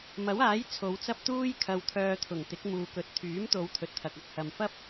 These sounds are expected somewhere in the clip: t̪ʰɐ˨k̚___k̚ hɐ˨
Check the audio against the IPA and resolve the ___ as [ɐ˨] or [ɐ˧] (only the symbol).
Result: ɐ˨